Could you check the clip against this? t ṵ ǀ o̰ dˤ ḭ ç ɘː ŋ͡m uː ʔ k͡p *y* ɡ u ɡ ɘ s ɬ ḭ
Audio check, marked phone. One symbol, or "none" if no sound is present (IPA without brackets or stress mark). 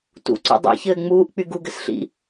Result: y